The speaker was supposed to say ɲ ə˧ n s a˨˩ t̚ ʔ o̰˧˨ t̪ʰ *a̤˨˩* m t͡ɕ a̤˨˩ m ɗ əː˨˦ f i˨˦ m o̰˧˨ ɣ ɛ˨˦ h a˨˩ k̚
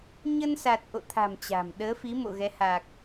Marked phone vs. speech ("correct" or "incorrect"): correct